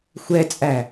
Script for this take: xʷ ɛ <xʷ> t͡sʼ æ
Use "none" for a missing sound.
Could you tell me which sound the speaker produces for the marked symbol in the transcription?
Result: none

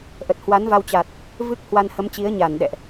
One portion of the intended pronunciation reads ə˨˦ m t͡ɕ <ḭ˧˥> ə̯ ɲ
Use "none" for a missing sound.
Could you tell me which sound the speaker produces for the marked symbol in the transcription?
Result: i˨˦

